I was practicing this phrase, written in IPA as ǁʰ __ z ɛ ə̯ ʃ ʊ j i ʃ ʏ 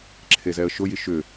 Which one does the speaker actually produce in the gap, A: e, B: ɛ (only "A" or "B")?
A